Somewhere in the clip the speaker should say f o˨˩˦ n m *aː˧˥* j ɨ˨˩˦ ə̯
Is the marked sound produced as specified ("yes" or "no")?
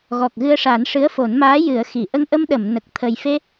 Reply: yes